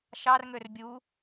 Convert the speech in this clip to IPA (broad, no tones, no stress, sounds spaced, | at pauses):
ʃ ɑ r ŋ ø r bʲ u